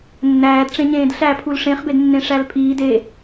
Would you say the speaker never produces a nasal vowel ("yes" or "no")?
no